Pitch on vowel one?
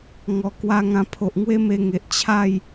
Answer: low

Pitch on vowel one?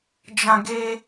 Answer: high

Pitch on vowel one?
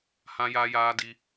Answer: high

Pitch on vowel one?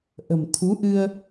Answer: low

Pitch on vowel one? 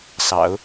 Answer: low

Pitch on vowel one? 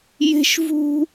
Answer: high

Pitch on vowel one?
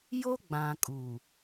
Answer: high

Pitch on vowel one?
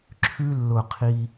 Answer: high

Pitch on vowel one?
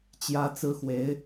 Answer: high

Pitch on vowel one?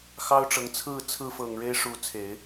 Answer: high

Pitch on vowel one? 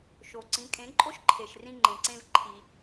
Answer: low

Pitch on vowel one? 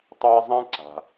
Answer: high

